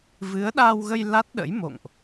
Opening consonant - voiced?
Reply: yes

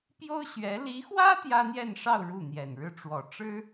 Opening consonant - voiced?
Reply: no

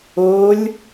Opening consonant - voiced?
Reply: yes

